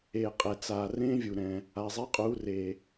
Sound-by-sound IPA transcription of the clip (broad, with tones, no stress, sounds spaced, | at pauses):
eː˩ qʼ ɛ˩ t͡s aː˩ r ẽː˦˥ vʲ u˩ ɾ ɛ̃ː˩ | a˩ zˤ e˨˥ qʼ uː˩˧ r eː˩